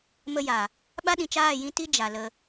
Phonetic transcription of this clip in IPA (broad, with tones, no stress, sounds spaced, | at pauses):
m ə˧ j a˨ | ɓ a˦ ɗ ĩ˨ t͡ʃ aː˦˨ j ĩ˦ t i˦ d͡ʒ a˨ l ə˧